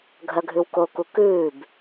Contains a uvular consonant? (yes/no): no